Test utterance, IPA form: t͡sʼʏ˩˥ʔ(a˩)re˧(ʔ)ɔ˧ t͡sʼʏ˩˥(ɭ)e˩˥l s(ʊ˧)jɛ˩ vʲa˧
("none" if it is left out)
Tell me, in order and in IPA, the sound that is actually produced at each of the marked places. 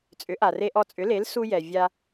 a˩, ʔ, l, u˧

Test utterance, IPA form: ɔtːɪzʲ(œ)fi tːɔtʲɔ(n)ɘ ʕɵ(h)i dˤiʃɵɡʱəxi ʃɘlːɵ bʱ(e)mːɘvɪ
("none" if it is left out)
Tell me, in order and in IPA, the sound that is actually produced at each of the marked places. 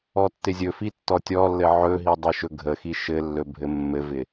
ɵ, lː, ɦ, ɘ

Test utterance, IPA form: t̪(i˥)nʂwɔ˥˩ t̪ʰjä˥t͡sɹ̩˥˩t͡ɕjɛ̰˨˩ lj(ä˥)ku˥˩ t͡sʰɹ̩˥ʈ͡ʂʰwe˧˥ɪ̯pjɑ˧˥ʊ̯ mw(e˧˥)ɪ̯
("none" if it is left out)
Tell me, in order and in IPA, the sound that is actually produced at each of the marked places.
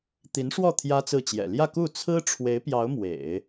i˧˥, ä˥˧, ḛ˨˩˦

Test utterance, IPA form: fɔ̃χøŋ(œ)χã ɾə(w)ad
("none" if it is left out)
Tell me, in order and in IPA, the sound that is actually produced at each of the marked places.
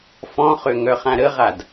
œ, ʁ

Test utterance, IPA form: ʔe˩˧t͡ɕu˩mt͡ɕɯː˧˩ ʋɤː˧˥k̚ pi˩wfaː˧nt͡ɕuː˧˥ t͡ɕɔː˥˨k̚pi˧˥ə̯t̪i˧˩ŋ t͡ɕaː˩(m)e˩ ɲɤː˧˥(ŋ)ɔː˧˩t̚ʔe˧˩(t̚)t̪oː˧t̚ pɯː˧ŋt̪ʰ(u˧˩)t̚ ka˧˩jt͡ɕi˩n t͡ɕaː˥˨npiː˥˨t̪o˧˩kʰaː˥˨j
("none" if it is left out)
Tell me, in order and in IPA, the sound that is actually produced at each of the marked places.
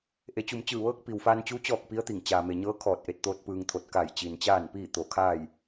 m, kʰ, t̚, o˧˩

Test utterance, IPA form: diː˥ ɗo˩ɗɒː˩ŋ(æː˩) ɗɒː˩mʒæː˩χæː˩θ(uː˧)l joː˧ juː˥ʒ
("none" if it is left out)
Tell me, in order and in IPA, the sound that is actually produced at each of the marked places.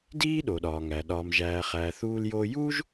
æ˩, uː˧

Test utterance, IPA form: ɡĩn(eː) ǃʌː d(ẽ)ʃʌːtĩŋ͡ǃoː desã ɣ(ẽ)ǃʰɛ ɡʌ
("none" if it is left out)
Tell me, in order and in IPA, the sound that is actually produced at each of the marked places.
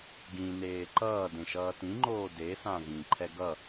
eː, ẽ, ĩ

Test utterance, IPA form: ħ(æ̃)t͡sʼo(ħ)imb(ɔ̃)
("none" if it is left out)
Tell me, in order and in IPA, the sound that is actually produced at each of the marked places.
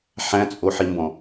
æ̃, ħ, ɔ̃

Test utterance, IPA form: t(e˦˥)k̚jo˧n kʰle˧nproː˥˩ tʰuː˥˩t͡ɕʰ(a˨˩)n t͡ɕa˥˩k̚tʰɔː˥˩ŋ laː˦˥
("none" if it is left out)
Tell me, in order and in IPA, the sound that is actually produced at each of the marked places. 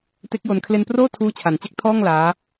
e˦˥, a˨˩

